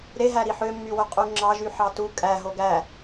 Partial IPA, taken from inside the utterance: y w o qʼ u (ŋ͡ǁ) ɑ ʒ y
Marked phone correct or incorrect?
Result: correct